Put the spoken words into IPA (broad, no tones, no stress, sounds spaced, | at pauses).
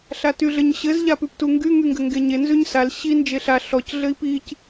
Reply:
ɬ a t y ɮ ɘ ɲ ɕ ɘ z ʎ a p ʉ p t u ŋ ɡ y ŋ y ŋ ɡ ɘ ŋ ɡ e ɲ e n z ʉ ɲ s a l ɕ i n d͡ʒ e ɬ a ɬ ɔ c ɮ ɘ i̯ p i c